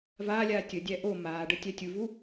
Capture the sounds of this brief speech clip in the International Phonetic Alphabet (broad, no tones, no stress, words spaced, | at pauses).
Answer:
vaːlʲaː tʲədʲæ ʔo maːɖə tʲætʲuvu